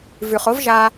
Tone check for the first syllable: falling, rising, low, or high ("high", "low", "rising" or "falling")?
low